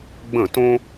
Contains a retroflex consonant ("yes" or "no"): no